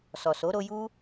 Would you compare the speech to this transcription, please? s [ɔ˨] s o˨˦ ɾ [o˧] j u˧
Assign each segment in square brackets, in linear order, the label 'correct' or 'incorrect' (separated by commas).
correct, correct